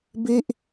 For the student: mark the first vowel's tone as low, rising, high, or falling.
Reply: falling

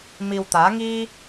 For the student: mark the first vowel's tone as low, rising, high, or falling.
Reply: low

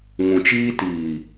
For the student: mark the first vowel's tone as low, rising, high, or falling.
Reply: low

